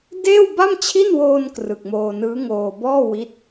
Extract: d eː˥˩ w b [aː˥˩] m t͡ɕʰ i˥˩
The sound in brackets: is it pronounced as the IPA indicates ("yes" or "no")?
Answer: no